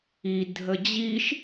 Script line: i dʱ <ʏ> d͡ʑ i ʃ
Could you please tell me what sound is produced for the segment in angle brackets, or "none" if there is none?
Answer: ə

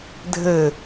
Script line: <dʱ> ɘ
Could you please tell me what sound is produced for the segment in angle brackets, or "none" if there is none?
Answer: dʱ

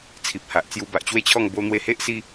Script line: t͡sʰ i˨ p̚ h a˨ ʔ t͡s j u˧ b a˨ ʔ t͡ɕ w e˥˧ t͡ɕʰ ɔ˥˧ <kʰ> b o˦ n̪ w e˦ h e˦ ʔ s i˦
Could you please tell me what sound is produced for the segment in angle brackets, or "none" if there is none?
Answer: ŋ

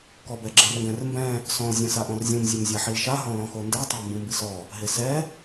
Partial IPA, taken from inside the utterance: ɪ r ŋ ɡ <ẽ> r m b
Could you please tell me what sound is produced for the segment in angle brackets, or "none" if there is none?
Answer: ɛ̃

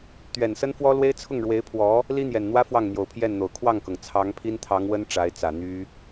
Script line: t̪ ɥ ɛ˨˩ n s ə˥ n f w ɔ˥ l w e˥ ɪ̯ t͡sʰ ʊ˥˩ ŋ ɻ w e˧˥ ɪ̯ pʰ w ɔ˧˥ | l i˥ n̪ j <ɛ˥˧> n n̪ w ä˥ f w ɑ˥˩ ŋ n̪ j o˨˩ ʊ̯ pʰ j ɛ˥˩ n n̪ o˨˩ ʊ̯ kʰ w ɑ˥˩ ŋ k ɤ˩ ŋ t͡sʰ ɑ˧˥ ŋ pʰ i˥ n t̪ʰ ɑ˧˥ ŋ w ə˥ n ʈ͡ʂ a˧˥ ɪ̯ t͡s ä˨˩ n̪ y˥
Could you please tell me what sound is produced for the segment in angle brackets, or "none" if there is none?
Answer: ɛ˨˩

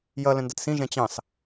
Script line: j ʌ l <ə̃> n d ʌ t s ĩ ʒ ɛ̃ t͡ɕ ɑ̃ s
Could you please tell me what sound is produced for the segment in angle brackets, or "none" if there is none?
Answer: ə̃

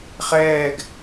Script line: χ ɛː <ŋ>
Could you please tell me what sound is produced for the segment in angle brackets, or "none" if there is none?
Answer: ɡ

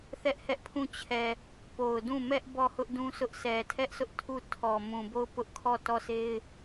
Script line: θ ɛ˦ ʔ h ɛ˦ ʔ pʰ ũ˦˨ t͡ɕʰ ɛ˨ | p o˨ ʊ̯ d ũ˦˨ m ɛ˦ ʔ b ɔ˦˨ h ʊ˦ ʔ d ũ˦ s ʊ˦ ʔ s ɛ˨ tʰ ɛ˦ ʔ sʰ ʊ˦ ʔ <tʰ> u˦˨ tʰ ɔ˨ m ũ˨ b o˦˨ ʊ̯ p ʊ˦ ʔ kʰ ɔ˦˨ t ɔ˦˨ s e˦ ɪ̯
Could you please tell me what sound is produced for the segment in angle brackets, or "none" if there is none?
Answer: tʰ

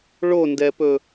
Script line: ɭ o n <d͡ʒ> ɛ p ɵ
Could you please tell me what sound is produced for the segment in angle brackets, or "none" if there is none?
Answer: d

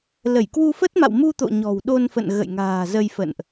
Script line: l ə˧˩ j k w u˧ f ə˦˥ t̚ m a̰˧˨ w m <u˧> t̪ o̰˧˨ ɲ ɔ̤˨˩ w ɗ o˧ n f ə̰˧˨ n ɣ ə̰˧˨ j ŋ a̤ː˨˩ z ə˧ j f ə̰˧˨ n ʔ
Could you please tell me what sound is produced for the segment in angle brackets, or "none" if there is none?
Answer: u˧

